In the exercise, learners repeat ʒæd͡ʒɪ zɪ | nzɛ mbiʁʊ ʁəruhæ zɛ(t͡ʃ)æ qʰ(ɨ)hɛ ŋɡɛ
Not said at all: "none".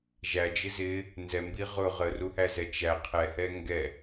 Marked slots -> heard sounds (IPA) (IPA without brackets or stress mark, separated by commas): t͡ʃ, ɛ